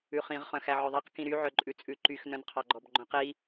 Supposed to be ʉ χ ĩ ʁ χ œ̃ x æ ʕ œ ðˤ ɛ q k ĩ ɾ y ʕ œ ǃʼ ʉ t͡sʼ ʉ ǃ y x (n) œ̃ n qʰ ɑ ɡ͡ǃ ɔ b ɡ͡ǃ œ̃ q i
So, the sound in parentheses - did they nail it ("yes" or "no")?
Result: yes